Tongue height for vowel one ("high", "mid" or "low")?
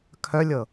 mid